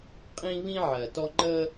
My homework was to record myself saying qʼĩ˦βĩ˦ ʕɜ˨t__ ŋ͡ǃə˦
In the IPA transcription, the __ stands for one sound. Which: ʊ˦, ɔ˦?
ɔ˦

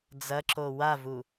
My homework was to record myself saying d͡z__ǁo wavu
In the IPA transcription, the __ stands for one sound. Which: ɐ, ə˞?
ɐ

